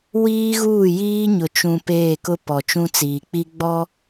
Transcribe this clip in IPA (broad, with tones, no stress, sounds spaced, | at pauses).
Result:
w iː˦ ɣ uː˦˨ j iː˦ ɲ ʊ˨ t͡ʃ ũ˨ p eː˦˨ k ʊ˦ p ɔ˨ t͡ʃ ũ˦ t͡s iː˨ k͡p i˦ ɡ͡b ɔ˦